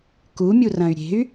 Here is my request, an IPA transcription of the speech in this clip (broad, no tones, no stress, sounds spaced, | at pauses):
k u mʲ u r ɐ̃ y̯ ɾʲ e̤ y̯